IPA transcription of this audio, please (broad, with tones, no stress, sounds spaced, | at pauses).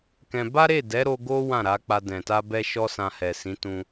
k ɛ̃˧ b a˦ ɾ e˦˨ d ɛ˨˦ ɾ o˧ ɡ o˦ w ã˦˨ ɾ a˨˦ k͡p a˧ d ɛ̃˨ t a˧ b ɛ˧ ʃ ɔ˦ s ã˧ h ɛ˨ s ĩ˨˦ t ũ˧